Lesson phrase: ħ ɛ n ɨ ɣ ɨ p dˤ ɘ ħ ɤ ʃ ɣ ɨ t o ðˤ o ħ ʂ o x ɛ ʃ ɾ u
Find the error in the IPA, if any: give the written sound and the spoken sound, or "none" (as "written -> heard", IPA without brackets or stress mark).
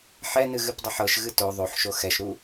ʂ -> ʃ